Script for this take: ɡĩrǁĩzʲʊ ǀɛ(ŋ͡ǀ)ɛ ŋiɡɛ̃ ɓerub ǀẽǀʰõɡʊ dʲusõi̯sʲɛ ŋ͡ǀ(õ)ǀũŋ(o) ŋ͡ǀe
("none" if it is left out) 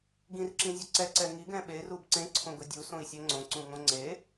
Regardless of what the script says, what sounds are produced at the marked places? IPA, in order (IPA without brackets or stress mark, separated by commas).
ǀ, õ, õ